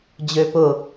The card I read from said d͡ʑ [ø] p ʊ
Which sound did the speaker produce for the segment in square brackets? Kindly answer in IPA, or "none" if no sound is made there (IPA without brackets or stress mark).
ø